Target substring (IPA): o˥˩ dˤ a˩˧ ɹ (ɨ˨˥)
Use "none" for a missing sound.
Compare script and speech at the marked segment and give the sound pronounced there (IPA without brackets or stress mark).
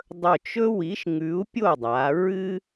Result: ɨ˦